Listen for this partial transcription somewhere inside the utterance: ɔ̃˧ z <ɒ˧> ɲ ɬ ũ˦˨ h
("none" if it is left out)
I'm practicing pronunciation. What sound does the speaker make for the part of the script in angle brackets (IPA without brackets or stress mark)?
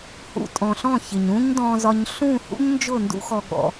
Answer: ɒ˧